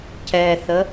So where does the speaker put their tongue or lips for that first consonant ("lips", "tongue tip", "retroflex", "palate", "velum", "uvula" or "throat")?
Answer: palate